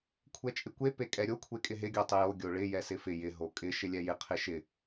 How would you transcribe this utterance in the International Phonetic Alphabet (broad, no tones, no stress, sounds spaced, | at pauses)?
kʷʰ ɛ t͡ʃʼ ɪ kʷ e p e kʼ ɛ ɾʲ o kʷʰ e kʼ ɪ ɦ ɪ ɡʲ o tˤ ɪ j o ɡʲ o ɭ ɪ j ɛ s ɪ f ɪ j ɪ ɦ o kʼ ɪ ʃ ɪ lʲ ɛ j ɪ qʰ ɪ ʃ ɪ